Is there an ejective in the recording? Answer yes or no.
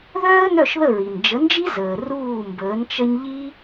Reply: no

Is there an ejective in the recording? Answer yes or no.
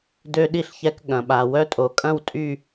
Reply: yes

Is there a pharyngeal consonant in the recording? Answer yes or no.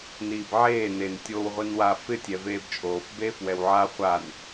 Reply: yes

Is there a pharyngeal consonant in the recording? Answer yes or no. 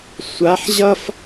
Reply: yes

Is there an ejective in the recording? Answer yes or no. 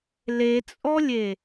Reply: yes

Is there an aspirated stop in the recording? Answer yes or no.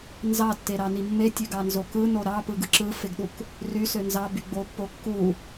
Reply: no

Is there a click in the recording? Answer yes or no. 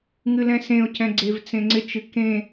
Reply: yes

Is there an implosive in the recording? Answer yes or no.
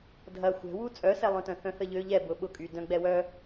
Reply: yes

